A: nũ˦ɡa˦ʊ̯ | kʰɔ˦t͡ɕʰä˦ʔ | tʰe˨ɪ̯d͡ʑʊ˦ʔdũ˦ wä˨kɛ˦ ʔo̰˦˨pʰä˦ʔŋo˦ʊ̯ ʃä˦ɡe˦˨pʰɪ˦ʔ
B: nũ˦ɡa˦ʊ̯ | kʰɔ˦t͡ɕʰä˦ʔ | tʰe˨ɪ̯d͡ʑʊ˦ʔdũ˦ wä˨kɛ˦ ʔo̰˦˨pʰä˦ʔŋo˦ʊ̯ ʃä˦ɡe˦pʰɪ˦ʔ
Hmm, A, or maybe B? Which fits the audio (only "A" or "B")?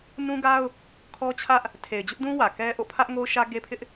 B